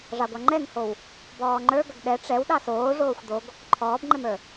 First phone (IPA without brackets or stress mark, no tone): ʐ